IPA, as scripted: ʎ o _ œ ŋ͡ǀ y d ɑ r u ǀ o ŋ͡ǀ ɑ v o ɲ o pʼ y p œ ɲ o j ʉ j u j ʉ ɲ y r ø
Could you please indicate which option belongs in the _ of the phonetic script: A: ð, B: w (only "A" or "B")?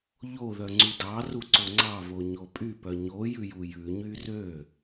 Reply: A